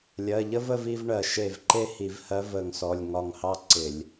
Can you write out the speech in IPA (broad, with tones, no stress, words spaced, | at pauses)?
lʲɜ˩˧˩ʎə˥və˥˧vi˥˧v ɳɜ˧˩˧ʃe˧˩vǃe˥˧hi˧˩˧v hɜ˧˥və˧˩˧ŋsɔ˩˧˩lʲ ŋɒ˧˩ŋhɑ˥˧ ǀɪ˧˩˧lʲ